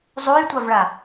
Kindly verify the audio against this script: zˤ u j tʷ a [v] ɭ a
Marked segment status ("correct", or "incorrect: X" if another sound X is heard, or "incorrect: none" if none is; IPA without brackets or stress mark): correct